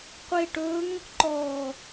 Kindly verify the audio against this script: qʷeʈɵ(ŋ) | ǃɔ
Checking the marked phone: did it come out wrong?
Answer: no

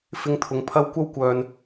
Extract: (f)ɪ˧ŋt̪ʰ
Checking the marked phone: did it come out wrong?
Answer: no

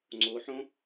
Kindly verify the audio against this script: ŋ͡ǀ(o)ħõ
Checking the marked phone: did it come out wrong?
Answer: no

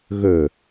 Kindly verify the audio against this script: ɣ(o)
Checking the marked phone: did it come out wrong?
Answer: yes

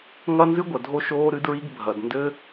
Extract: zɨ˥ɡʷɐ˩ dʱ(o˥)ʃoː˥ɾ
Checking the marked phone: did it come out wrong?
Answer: no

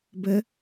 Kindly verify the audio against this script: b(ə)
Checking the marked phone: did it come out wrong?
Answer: no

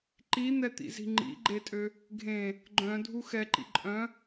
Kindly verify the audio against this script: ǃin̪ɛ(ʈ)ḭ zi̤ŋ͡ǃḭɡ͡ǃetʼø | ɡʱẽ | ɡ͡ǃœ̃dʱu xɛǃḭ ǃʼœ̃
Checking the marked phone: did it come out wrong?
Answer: yes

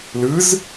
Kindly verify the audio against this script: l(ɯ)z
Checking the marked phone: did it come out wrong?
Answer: no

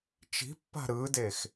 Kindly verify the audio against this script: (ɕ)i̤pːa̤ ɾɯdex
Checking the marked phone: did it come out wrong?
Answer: yes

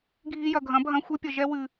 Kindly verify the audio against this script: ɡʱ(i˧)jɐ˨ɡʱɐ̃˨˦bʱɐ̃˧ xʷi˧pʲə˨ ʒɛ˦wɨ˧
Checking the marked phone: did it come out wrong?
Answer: no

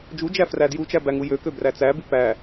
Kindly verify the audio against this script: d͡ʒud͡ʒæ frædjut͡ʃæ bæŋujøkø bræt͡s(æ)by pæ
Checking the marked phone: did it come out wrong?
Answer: no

